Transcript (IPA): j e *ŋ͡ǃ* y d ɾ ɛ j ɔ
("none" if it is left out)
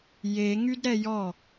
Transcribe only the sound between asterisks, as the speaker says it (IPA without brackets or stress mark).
ŋ